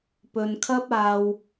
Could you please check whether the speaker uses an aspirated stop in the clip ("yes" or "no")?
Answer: yes